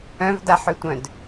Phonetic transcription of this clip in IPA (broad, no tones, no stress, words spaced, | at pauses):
œ̃vdaħøtʷœ̃d